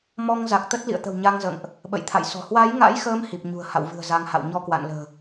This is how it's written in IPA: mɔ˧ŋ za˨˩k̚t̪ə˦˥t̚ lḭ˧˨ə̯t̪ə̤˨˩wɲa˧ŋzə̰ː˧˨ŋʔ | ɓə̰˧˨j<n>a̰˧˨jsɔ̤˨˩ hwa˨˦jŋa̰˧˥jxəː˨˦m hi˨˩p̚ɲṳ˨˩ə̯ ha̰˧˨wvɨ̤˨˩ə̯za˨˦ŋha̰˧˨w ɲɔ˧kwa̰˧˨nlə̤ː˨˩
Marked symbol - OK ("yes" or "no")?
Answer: no